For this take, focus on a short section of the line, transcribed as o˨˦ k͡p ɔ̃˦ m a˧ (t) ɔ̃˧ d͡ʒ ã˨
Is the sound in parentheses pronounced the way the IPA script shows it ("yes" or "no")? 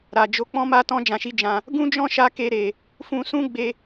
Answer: yes